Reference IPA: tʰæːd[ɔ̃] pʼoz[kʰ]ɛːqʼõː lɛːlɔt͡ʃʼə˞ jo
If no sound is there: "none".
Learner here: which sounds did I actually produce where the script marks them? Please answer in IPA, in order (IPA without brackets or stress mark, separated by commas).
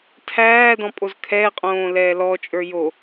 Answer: ɔ̃, kʰ